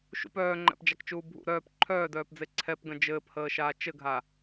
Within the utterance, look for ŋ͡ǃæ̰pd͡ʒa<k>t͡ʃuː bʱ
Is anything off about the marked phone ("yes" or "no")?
no